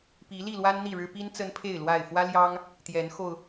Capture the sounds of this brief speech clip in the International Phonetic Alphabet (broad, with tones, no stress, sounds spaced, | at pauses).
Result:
p i˨˦ l i˥˨ l w a˦ n n̪ i˥˨ ɻ ɻ̩˦ p i˦ n t͡s ə˦ n pʰ e˥˨ ɪ̯ l w a˥˨ ɪ̯ f w ä˦ l j ɑ˦ ŋ | t̪ j ɛ˨˦ n x o˧ ʊ̯